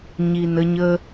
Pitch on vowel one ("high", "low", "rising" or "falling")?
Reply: low